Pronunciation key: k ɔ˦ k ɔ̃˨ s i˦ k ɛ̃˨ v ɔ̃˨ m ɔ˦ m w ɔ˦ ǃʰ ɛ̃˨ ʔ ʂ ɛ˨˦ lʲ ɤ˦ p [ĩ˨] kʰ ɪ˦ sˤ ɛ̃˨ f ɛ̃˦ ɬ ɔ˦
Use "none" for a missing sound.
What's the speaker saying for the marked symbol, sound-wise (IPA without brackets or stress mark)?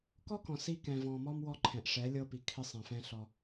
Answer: i˨